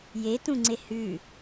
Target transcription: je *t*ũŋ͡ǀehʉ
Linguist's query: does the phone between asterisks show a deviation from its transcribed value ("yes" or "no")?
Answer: no